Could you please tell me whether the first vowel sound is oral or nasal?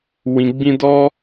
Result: nasal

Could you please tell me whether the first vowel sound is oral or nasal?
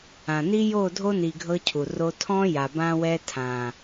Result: nasal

